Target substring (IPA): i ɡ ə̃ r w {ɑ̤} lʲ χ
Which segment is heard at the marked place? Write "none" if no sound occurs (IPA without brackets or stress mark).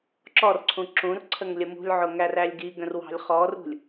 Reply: ɑ̤